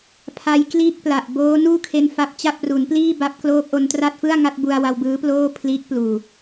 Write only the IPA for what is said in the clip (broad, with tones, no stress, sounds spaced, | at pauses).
pʰ a˦˥ j k l iː˥˩ k̚ p l a˨˩ ʔ b oː˦˥ n uː˥˩ kʰ e˧ n f a˦˥ p̚ t͡ɕ a˥˩ p̚ r u˩˦ n p l iː˥˩ b a˦˥ p̚ k l oː˦˥ k̚ ʔ o˧ n t r a˥˩ t̚ f ɯ˥˩ a̯ ŋ a˥˩ t̚ b u˧ a̯ w a˧ w b ɯː˦˥ p l oː˥˩ pʰ l iː˦˥ k̚ p l uː˨˩